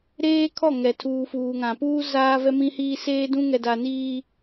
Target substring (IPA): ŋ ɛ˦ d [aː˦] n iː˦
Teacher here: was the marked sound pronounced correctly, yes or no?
no